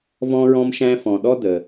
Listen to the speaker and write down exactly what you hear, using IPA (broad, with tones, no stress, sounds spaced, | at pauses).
v ɔ̃˧ ɹ ɔ̃˧ m ʃ æ̃˧ f ɔ̃˩ ɗ ɔ˥ d ə˩